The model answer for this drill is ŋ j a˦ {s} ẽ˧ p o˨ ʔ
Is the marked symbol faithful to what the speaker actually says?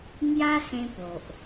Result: yes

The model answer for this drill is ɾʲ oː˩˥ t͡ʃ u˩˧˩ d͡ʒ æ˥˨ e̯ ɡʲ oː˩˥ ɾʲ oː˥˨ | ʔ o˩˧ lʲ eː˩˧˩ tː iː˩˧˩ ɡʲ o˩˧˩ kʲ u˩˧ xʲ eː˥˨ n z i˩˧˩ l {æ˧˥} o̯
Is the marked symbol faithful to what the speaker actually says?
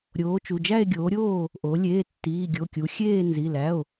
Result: no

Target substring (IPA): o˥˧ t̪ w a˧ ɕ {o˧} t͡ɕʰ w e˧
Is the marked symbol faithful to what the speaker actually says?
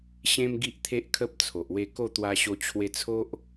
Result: yes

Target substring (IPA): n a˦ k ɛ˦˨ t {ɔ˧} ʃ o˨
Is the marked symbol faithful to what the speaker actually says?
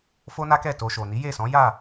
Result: no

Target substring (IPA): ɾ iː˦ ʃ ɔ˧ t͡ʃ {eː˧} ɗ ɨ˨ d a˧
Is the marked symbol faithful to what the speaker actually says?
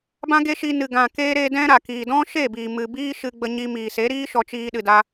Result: no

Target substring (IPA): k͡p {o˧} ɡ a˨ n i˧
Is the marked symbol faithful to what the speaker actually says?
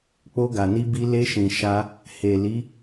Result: yes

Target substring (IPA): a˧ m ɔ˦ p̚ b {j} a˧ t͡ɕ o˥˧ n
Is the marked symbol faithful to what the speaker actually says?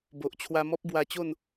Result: no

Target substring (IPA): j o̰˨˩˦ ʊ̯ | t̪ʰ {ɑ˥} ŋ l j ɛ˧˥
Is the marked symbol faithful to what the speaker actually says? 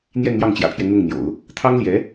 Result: yes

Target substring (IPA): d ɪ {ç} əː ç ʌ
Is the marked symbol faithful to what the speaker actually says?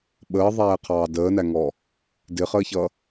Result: no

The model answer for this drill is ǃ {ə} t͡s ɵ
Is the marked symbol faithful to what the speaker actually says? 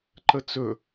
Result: yes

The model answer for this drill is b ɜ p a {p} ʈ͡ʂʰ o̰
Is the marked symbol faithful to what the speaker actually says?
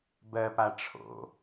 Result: no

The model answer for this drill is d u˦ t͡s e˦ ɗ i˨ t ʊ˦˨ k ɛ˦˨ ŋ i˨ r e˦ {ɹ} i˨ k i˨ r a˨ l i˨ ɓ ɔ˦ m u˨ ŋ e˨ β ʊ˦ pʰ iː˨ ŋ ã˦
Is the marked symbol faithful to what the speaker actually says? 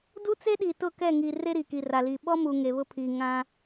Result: no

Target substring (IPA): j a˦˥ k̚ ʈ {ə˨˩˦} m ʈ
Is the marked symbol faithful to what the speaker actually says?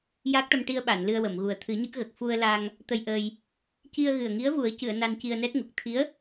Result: no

